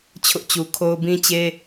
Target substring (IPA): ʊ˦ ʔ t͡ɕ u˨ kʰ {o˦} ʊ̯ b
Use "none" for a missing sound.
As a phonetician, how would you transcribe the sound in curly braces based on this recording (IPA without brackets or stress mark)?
o˦